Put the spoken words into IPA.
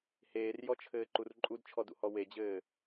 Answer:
h eː r j ɔ t͡ʃʰ ɘː ǃ u r ǃʼ u d t͡ʃʰ ɔ d ṵ h ɔ w e d͡ʑ ɘː

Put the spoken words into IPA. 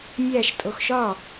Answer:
mʲ æ ʃ tʼ o x ʃ ɒ

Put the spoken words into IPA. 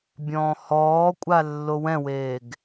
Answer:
bʲ ɔ̃ː h ɔː kʷʼ a lː o w ɛ̃ w eː ɡ

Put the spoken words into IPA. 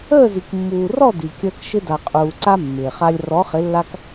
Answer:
əː˥˩ z i˩ k mː uː˩ r ɔ˥˩ d i˩ kʲ əː˧ k ʃ ɪ˧ d a˩ qʼ uː˩ ǀ a˧ mː ɪː˩ χ a˧ lʲ r ɔ˩˥ χ ɪ˩˥ lː a˧ k

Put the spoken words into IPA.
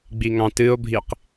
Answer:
ɡ͡b i ŋ ɑ̃ t ɨ o̯ bʱ i q

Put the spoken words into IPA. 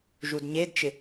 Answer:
ʒ u d ɲ e d t͡ʃ ɪ

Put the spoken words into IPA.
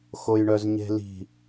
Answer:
x o j ɳ œ z ɲ e̤ l i̤

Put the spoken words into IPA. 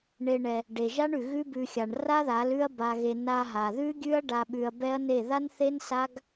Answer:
ɳ e˧ ɳ ɛ˧ | ɖ e˨ ʒ a˦ ɳ ʉ˨ ɣ ʉ˦ b ʉ˧ xʲ a˨ ɳ r a˦ ð a˨˦ l ʉ˦ ɐ̯ b a˧ ɣ e˧ n a˧ ɦ a˨ ð ʉ˦ ɡʲ ʉ˦ ɐ̯ ɖ a˧ ɓ ʉ˧ ɐ̯ b ɛ˦ ɐ̯ n e˦˨ ð a˦ n θ e˦ n s a˦ ɡ

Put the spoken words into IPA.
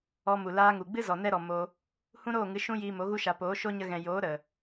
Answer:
ɔ˧ m u˨ l aː˧ ŋ u˨ ɡ͡b ɨ˦ z ɔ˨ n ɛ˦ ɾ ɔ˨ m o˧ | h ũ˦ ɾ oː˦˨ ŋ ɨ˨˦ ʃ ũ˦ j iː˧ m o˨˦ ɣ u˧ ʃ a˨ p oː˨˦ ʃ o˦ ɲ ə˧ ɣ ɛ̃˨ j oː˨˦ ɾ ə˨

